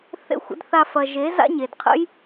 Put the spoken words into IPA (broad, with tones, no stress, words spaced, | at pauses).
θḛ˧xʷ ə̰˨˦dθa˧fɐ˨ ʒe˨˦ za̰˦ɲe˨d qʰə̰˦j